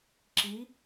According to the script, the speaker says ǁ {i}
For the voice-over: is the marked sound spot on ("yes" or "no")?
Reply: yes